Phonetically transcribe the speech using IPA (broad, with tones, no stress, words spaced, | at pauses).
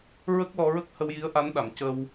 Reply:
ɹə˦˥k̚lɔ˧ɹə˦˥k̚ hə˧wji˧˥ə̯ʔa˧˥nɗa˨˩m cə˧w